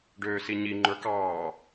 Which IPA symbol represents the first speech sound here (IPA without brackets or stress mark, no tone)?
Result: ɖ